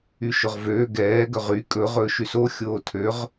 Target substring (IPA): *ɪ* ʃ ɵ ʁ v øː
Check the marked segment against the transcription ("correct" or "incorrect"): incorrect